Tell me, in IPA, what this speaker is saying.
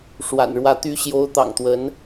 ʂwa̰˨˩nɻwä˧˥ t̪y˧˥ɕjo˧˥ʊ̯ t̪ɑ̰˨˩ŋt̪wə˧˥n

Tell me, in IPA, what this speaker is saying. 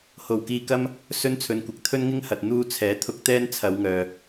ho˨˩wkiː˧kɐ˥m | sɵ˥nt͡sʰɵ˨nkʷɐ˨k̚ t̪ʰɵ˥nŋɪ˥ŋhɐ˨t̚ n̪uː˧t͡sʰɛː˨˥ t̪ʰʊ˧k̚t̪ɛː˥n t͡sʰɐ˨˧wŋœː˨

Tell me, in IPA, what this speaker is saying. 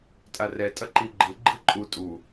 tʼarɛ tʼʌǃiɡ͡ǃɯ ɡ͡ǃɯǃʼu tʼu

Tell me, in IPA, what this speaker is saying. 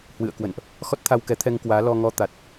hwɨ̰˧˨ə̯kwə̰˧˨nʔ | xɔ˦˥t̚t̪ʰa˧wkɛ˨˦ t̪ʰɛ˧ŋkwaː˨˦ lɔ˧ŋɔ˧ t̪a˨˩t̚

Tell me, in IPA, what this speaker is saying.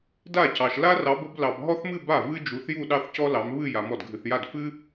da˥˩cɑ˨ʃ la˥rɑ˨˦bə˨˦b lɑ˨bɦɔ˥θmɨ˥˧ ba˥˩ vɨ˥d͡ʒu˨˦θju˥˧ ɗɑ˥˧θcɔ˥lɑ˨˦m βɨ˥˧ ja˨˦mɔ˥˩d ɡʱɨ˨θja˥˩d fɨ˥

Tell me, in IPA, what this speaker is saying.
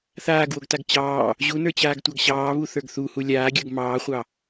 θaːɡwoɡtaɡ t͡ɕɑː | ʑunə˞t͡ɕaːɡtʷɑɡ ɕɑːβuθə˞ɡ θuhu lʲaːɡʲə˞ɡ mɑːχʷɑ

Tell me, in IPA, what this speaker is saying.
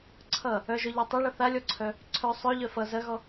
ǀʰʌ | œʒœʎe tˤɐɭʌ θalʲɔǀʰœ | ǀʰœ sˤœʎœ fʌ zɐɣɔ

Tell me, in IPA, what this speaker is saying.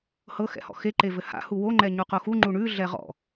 hɤ xɛ̰hɔ̰xe ǃevɘha̰ huwo ŋ͡ǃɛɲuqoxu ŋ͡ǃuɳʉ ɮɛʁɔ̰

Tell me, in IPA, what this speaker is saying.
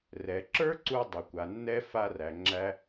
rɛ˩ ǁə˞˥ǀu˧ dˤʊ˩kʷa˩nːɛ˧ fa˧ræ˩ŋ͡ǁæ˧

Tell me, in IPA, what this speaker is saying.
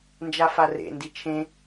nd͡ʒafarḛ ndit͡ʃʰẽ

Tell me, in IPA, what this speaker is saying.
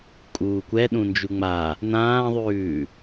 kʼuːkʷɛɗũ nd͡ʒuŋ͡ma | nãːðˤʉː

